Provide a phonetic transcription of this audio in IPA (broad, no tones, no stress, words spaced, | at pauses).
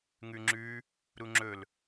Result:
ŋʉŋ͡ǁʉ | ɾuŋ͡ǁɵl